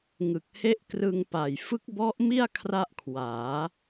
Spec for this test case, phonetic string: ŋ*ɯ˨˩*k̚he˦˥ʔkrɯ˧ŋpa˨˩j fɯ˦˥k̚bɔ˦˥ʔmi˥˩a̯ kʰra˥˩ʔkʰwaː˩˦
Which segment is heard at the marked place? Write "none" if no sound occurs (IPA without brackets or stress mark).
ɯ˨˩